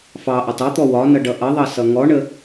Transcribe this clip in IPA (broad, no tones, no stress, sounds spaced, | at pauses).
f ɑ ʔ ɒ tˤ ɑ t̪ ɔ w ɒ n ʌ ɖ ʌ ʔ ʌ ðˤ ɑ s ʌ ŋ ɔ ɳ ə